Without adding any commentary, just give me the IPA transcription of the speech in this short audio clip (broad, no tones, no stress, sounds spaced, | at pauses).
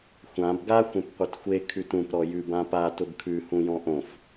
xʷ ã b ɡ a xʷ ẽ p qʷ e t xʷ e kʰ ʉ t ũ p ɾ ɔ j ʉ b ã p a t ʊ b kʰ ʉ h ũ j ɔ̃ ʔ õ f